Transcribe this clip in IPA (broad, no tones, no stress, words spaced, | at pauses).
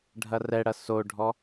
ɖʱɐrɛɽɐ soɖʱɔ